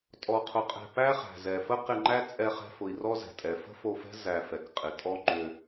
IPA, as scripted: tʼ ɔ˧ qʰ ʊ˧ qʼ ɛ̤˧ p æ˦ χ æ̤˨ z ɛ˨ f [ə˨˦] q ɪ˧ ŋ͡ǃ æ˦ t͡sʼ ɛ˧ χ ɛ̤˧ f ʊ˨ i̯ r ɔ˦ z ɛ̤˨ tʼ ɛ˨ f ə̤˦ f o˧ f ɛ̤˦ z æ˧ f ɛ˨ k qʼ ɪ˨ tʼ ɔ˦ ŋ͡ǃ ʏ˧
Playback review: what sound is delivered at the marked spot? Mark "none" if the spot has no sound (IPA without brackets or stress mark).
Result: ə˦